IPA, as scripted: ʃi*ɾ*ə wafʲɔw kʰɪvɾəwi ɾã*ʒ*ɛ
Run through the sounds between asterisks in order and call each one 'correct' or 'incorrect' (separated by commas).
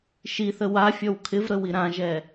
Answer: incorrect, correct